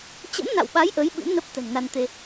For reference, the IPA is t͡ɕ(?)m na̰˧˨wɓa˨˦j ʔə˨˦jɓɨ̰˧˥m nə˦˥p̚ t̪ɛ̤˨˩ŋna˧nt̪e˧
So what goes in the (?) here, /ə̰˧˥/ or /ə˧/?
ə̰˧˥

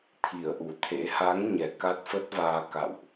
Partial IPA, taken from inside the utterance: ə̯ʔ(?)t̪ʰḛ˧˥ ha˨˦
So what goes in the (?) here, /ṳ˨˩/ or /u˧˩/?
u˧˩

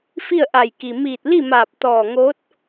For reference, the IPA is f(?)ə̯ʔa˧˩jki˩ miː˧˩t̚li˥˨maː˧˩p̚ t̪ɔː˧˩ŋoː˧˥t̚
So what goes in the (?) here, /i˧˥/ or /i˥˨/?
i˥˨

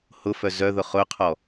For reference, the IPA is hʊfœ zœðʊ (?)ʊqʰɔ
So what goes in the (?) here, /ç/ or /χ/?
χ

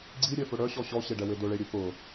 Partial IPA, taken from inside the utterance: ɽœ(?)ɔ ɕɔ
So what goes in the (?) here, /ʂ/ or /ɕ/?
ɕ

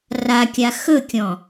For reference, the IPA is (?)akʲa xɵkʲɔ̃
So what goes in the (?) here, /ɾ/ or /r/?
r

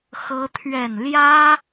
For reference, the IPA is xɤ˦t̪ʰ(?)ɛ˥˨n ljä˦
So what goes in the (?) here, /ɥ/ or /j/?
ɥ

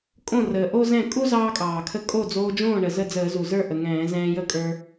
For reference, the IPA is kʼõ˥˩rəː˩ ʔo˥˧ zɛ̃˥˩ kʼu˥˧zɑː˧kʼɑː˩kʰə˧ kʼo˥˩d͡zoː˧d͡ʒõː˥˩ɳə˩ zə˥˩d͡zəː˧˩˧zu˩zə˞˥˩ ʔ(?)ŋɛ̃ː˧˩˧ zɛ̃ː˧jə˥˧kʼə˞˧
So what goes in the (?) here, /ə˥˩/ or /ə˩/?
ə˩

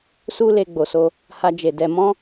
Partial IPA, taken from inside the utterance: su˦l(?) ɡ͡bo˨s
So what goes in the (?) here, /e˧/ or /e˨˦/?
e˧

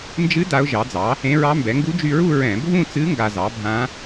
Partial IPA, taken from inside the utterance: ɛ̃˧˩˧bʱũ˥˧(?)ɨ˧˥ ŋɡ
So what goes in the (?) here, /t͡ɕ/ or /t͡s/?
t͡s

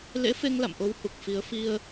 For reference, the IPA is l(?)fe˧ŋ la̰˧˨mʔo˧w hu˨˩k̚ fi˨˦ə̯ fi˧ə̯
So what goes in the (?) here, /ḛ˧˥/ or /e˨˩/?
ḛ˧˥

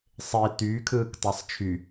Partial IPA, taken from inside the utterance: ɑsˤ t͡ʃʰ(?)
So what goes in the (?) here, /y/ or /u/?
y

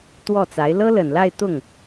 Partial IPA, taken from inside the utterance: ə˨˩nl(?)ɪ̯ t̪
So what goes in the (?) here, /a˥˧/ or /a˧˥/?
a˥˧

